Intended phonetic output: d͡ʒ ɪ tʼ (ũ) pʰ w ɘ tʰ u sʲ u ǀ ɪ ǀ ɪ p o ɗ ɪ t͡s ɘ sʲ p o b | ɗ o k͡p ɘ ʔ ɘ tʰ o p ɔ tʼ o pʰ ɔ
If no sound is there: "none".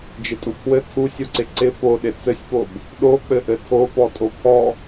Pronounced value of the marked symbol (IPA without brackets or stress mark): u